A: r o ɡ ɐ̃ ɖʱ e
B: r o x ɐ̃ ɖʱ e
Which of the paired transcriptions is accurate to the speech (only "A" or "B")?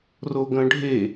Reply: A